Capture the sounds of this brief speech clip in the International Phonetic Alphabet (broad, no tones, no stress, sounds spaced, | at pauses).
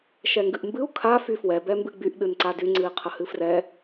ʃ ɛ ŋ ɡ ɨ ʔ m b ɨ u̯ kʰ a f y f w ɛ b ɛ m b ɨ ɡ͡b y ʔ ɗ ɨ n ǀ a d y ŋ͡ǀ ɨ i̯ qʰ ə h ɨ f r ɛ